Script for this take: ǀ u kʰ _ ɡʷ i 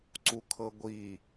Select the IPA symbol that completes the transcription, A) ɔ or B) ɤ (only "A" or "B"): B